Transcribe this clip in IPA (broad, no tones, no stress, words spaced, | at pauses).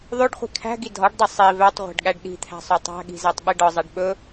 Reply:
ðˤoɖχʷi̤ kʰæ̤ɡi dʱɒɖdˤɵ sˤi vætˤʁʷæ̤ɖɠæɖ ɗi̤t̪ʰæ̤sˤo tˤæ̤ɠi̤zætˤɓi ɖɒzˤæɖ ɓɵ